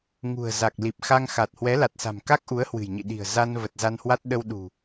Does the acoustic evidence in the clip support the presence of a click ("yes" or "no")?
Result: no